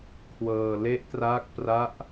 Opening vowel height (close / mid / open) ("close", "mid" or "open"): mid